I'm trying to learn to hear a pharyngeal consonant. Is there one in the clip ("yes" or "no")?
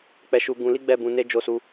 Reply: no